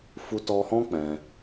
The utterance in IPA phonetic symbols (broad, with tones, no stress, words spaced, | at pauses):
fu˧tɔ˧hɔ̃˦ k͡pɛ̃˧